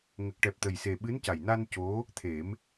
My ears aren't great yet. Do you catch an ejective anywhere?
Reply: no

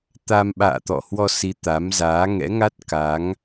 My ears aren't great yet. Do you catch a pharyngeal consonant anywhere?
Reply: no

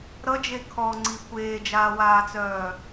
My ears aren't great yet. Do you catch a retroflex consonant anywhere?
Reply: no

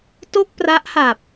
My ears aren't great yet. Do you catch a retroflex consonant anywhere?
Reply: no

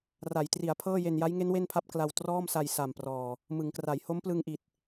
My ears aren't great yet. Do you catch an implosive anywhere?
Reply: no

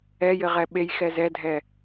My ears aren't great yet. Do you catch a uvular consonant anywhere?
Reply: yes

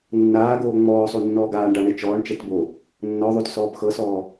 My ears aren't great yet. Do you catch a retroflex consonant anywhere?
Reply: yes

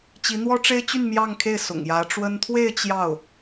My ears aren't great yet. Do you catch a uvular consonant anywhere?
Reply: no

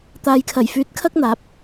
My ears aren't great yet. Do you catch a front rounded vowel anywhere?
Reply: yes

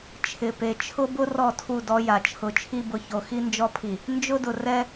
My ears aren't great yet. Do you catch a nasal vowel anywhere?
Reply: no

